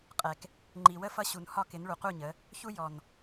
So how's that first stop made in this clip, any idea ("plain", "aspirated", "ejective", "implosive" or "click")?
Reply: ejective